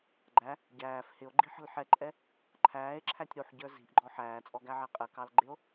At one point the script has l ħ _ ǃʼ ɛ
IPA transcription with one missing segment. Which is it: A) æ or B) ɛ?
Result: B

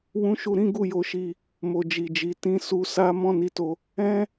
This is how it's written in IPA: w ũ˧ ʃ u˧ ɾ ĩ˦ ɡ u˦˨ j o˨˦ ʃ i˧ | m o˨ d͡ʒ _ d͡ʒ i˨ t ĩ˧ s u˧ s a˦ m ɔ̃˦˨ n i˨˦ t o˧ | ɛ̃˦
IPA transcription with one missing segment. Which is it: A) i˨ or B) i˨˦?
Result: A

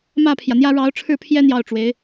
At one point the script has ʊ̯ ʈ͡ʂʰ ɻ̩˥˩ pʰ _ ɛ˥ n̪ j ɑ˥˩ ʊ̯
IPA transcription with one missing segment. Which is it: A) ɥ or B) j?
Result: B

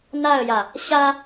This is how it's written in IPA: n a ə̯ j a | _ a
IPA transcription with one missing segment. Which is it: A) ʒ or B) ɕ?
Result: B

